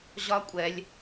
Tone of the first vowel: high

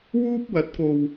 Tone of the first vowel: high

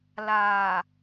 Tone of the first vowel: low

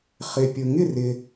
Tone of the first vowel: low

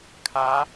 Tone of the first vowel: rising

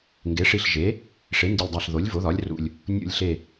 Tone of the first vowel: rising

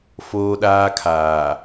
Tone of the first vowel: high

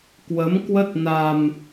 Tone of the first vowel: rising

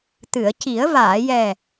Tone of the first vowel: low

